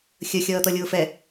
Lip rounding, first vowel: unrounded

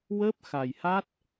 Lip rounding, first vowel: unrounded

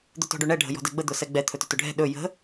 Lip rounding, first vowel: rounded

